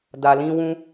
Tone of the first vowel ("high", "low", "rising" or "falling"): low